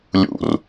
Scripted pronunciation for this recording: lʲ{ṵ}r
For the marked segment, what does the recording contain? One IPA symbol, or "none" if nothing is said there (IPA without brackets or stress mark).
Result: ṵ